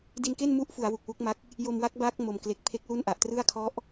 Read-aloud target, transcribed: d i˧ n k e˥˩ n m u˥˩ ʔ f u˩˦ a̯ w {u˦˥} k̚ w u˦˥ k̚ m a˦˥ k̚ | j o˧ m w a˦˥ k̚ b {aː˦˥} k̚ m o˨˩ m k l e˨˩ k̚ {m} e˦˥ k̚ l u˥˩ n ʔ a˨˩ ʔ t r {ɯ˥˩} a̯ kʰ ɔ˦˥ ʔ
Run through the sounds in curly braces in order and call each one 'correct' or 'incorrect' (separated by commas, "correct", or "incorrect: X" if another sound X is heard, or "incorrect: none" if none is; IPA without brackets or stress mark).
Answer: incorrect: u˨˩, correct, incorrect: pʰ, correct